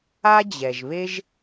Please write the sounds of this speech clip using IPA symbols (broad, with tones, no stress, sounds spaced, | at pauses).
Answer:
a˥ d͡ʑ ɛ˩ ʒ β e˥ ʒ